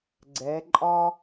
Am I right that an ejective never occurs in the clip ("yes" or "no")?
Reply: no